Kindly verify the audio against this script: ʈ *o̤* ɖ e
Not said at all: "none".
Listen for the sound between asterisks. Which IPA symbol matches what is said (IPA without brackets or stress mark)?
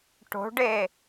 o̤